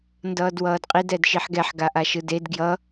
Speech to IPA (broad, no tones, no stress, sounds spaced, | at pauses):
n d ʌː d w ʌː d qʼ i d ɛ d ʃ i ħ ɡ ɛ ħ ɡ a ʔ a ʃ ɯ d e d ɡ j ʌ